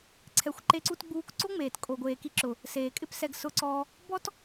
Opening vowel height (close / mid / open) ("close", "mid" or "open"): mid